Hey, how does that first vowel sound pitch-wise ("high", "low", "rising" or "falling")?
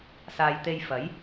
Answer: low